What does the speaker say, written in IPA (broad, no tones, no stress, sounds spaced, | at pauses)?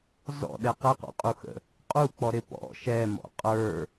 z ɔ̰ ɗ ɛ q ɛ q ɔ̰ qʼ u x ə̰ | qʼ u k͡p ɔ ɾ ɪ p ɔ̰ ʃ ɛ m ɔ̰ qʼ ə˞